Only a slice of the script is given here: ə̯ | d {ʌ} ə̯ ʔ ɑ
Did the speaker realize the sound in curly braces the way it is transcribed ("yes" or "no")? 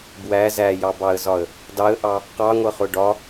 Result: no